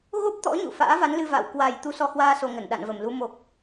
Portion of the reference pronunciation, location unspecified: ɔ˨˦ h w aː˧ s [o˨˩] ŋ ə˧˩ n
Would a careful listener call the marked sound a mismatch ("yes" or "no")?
no